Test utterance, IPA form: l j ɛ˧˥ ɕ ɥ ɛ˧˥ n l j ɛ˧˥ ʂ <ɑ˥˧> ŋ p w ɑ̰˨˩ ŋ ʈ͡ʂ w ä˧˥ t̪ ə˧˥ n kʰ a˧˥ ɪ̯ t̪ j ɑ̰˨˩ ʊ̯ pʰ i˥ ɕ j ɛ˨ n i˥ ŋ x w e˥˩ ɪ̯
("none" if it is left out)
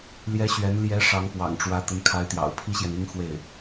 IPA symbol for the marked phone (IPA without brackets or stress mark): ɑ˧˥